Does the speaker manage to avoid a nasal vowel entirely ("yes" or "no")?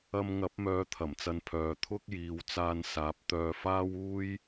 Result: yes